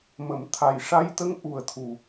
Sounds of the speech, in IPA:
mə˨˩˨mt̪ʰa˨˩jʂa˧jt̪ə˧˥ŋ ʔu˨˩ə̯t̪ʰu˨˩

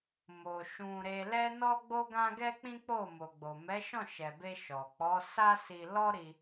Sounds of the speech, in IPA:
mo˨ ʃũ˧ ɾe˧lɛ˦ nɔ˦ɡ͡bo˦ɡã˦ ɡɛ˦k͡pĩ˦k͡po˦˨ mo˨ɡ͡bo˨ mɛ˨˦ʃɔ̃˦˨ʃɛ˨be˧ ʃɔ˨ k͡pɔ˨˦sa˦si˧ lɔ˦ɾi˧

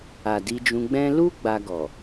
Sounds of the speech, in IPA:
a˨ di˧d͡ʒũ˧ ɡ͡bɛ̃˦ lu˦ ɡ͡ba˧ɡɔ˨

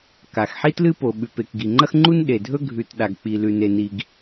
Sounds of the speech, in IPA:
ka˩xħi˥ tlɨ˥po˩ɓʉ˩pe˩k ɡi˩ŋ͡ǃɐ˥xŋ͡ǃu˥n ɗe˩dʱɵ˥ ɡʱʉ˩t ɗa˩ɡk͡pi˩lʉ˩ne˩ ni˩ɡ

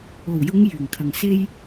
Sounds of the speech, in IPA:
o˨˩wjʊ˨˧ŋ jyː˨˩ŋkʰɐ˨ŋse˥j

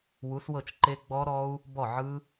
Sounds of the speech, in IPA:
wu˨˥swɤ˥˩t͡ʃǃe˦˥ ɡ͡bɔ˦˥ɾɔ˦˥u̯ | bɔ˥˩ʕɯ˦˥

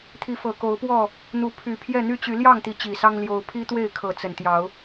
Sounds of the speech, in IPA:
t̪ʰi˨˦fɤ˨˩ko˨˦ʊ̯pwɔ˥˨ | n̪u˨˦ pʰy˨˩pʰjɛ˥˨ n̪y˦t͡ɕy˨˦ ljɑ˥˨ŋt̪i˨˦ t͡ɕi˨˩sɑ˦ŋ ljo˨˦ʊ̯ pʰi˦t̪we˥˨ɪ̯kʰɤ˨˦ t͡sə˨˩nt̪jɑ˨˦ʊ̯

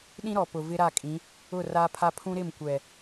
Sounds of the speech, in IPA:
ɗĩ˦ɾɔ˨ pʊ˨vɪ˦ɾa˦˨kʼĩ˨˦ | ʊ˦˨ra˦pʰa˦ pʰũ˦ɾɪ˦˨mkʷɛ˨

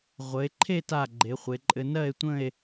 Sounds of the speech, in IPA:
ʁʷə˩˧e̯ǃʰe˥˧ta˧˩ ɡ͡ǃe˩˧χʷe˩˧ǃʼɘ˧ nɜ˥˧e̯tʷə̃˥˧e̯

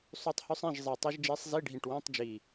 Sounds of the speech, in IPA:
sˤʉ˥˨tˤhʉ˥sˤẽ˧˥˧ʒ zˤe˧˩tˤi˥ʒ d͡ʒe˧˥sˤzi˧˥˧ɖʱĩ˧˩ʈwĩ˧˥˧tˤ d͡ʒi˧˩

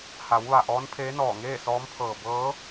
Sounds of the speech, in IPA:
ha˩˧wʋa˧˩ ʔɔː˧˥npʰeː˧˥nɔː˧˩ ŋeː˥˨sɔː˧˥mpʰɤː˧˩ bɤː˧˥

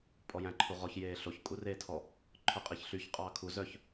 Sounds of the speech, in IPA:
pʼɔjæ̃ǃʰuʁɔç jeːɬoç kʼureːtʰɔ | ǃʰɵqʼiçɬyç qʼɑːkʰu zœç

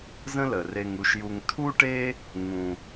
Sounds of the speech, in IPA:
zə̃˦lə˩re˨ŋu˨ʃ ju˨ŋtʰu˥ʈe˥ | ŋũ˨

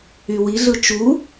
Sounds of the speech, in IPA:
ywiɮɯ t͡ʃu

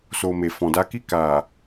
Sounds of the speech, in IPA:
so˨ me˨fɔ̃˨da˧ ki˧ ka˨

